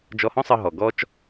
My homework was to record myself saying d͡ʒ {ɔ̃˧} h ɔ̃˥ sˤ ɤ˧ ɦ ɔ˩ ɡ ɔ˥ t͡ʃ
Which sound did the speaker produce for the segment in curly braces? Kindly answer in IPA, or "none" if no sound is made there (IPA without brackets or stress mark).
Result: ɔ˧